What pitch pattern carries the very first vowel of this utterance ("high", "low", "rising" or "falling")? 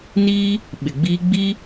high